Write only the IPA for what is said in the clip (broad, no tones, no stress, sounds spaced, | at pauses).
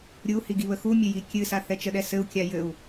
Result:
ɾʲ u h i ɡ i β ə x u mʲ ɘ j i kʲ ɨ s a θ ɛ t͡ʃ ə ɗ ɛ s ɘ u̯ kʲ a j ɘ u̯